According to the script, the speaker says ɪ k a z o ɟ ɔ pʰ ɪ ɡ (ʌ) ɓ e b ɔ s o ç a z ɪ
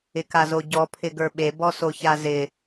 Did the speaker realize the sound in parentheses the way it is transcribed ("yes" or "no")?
no